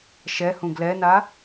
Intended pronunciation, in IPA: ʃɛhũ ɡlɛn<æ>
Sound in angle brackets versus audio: incorrect: a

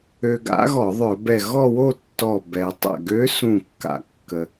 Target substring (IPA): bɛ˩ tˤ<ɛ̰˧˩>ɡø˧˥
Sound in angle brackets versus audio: correct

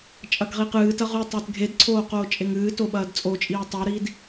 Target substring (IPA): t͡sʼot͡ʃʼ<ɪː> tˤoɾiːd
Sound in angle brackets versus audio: incorrect: iː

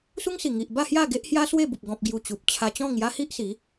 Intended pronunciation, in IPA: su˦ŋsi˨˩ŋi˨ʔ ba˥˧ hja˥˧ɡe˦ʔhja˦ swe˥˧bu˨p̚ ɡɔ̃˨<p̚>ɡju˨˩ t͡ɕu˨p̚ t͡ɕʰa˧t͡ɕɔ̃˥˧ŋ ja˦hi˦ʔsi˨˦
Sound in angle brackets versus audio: correct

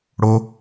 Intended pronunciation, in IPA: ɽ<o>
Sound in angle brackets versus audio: correct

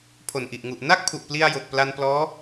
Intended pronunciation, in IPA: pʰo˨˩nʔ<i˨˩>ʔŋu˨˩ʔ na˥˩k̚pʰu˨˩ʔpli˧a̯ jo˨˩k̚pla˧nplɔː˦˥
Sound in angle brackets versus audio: correct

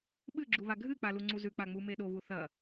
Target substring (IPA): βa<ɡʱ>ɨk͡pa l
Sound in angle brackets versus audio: correct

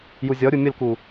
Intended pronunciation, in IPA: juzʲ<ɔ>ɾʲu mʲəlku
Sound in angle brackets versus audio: correct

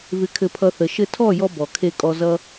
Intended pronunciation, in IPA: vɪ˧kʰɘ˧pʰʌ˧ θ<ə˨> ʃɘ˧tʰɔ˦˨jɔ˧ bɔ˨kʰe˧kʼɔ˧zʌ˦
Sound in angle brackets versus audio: correct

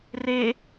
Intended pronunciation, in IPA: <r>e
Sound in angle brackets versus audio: correct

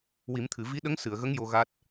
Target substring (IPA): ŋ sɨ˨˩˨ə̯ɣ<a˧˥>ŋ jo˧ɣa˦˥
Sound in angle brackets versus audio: incorrect: ə˧˥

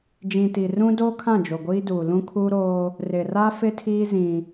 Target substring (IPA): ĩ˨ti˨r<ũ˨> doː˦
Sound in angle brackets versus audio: incorrect: ũ˦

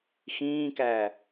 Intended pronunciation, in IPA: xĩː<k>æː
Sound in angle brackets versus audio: correct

